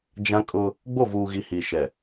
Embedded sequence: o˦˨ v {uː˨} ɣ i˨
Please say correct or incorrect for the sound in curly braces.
correct